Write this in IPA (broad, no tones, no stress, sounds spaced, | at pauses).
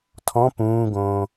tʰ ɔ̃ p ũː ɡ õː